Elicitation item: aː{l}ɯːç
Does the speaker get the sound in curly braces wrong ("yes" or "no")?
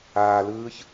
no